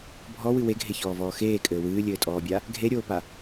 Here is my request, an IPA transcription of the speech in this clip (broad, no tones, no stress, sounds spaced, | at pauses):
bʱ ɔ w ɨ w e ɡʱ e ç ɔː v ɔː x eː kʼ ɘː w ɨː lʲ ɘː tʼ ɔː bʲ a | ɡʱ e ɾʲ oː p a